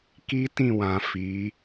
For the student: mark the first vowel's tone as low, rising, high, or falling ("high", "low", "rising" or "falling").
high